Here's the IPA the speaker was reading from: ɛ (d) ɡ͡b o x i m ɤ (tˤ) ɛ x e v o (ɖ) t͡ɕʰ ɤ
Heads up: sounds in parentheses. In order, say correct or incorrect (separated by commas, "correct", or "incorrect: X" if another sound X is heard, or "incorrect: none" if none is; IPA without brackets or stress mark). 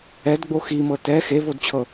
correct, incorrect: t, incorrect: d